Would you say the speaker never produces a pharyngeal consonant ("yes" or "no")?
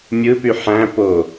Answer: no